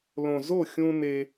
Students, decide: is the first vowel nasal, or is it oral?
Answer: nasal